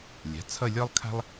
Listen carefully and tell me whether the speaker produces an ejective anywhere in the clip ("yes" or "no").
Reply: no